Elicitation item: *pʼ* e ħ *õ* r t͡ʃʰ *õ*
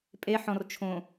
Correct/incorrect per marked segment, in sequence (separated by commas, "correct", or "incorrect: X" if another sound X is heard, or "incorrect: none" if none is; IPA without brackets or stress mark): correct, incorrect: ɔ̃, correct